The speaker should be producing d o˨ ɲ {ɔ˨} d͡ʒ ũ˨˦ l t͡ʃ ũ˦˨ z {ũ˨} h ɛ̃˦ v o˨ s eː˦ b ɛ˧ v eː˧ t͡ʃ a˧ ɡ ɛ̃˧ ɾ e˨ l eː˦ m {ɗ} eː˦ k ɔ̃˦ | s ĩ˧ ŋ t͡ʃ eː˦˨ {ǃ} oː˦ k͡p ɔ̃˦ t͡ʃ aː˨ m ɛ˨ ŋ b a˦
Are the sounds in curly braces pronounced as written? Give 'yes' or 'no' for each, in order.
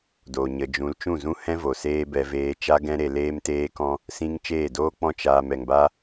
no, no, no, no

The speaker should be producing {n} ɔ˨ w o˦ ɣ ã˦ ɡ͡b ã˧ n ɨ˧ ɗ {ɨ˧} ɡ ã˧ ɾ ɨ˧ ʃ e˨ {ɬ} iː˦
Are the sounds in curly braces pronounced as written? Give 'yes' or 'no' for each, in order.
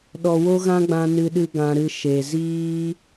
no, no, no

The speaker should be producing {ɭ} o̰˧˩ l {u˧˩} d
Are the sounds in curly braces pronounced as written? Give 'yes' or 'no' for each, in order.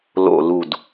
no, yes

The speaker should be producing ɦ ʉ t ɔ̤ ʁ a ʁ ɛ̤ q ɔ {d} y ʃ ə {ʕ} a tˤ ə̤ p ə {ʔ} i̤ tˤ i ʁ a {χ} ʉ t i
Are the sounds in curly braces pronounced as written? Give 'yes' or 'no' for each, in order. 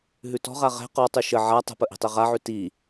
no, yes, yes, no

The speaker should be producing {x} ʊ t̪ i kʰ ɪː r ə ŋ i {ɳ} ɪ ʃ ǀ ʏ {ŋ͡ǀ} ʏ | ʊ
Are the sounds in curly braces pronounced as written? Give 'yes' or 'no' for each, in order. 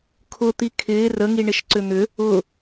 no, yes, no

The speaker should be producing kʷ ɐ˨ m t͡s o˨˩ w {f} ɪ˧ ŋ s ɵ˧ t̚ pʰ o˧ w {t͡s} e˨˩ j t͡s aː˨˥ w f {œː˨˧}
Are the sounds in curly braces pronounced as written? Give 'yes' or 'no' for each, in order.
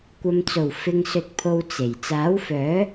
yes, yes, no

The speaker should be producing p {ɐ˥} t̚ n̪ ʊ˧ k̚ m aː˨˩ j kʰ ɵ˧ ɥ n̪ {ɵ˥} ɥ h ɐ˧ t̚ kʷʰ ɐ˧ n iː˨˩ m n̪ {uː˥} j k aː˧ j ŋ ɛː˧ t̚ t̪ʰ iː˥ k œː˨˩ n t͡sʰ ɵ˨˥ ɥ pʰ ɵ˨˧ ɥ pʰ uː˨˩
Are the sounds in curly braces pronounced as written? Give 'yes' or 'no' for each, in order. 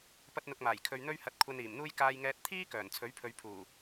yes, yes, yes

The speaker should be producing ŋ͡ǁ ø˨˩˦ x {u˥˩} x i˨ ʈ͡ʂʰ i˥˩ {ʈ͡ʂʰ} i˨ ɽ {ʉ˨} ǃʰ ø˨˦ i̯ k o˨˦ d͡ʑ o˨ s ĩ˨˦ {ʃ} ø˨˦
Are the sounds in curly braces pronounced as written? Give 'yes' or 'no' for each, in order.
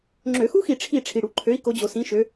no, yes, no, yes

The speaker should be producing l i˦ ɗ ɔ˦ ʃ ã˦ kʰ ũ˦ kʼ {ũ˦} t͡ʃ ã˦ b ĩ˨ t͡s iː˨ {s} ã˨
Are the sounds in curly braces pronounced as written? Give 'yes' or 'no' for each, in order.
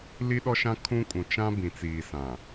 no, yes

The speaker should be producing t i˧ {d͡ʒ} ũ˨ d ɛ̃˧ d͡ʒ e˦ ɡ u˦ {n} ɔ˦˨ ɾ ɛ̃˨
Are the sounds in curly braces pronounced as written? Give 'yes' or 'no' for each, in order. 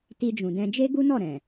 yes, yes

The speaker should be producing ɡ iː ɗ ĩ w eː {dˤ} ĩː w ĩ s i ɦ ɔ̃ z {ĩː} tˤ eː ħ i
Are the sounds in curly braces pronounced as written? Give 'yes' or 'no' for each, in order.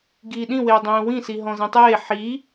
yes, no

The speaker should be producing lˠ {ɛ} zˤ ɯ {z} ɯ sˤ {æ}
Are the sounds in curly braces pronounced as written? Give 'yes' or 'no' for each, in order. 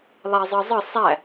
no, no, yes

